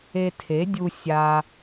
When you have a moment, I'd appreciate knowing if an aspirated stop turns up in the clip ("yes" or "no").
yes